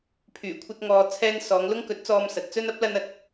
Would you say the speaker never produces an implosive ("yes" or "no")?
yes